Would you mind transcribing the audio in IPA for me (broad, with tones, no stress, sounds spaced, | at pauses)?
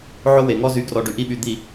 ʕ o˦ w e˨ ŋ ɔ˦ z y˨˦ ɡ r ɔ˨ ɖ y˨ ʔ i˦ ɓ y˨ d̪ i˨